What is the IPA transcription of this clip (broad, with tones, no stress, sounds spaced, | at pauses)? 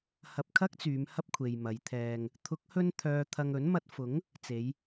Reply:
h ɐ˧ p̚ kʰ ɐ˥ k̚ t͡s yː˨˧ m h ɐ˥ p̚ kʷʰ e˨ j m ɐ˨˧ j t̪ʰ ɛː˧ ŋ | t̪ʰ ʊ˨˥ k̚ h ɵ˧ n t̪ʰ œː˨ t̪ʰ ɐ˨ ŋ ɵ˨˥ n m ɐ˧ t̚ f ʊ˨˥ ŋ | t͡s e˨˧ j